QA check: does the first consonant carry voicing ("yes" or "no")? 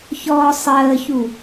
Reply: no